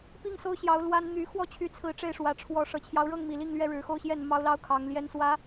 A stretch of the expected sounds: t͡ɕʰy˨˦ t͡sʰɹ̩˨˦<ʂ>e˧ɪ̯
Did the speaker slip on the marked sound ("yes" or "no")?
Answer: yes